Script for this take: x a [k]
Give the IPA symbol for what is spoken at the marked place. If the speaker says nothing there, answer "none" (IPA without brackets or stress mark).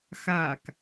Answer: k